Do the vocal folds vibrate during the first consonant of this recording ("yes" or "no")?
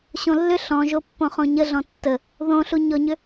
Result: no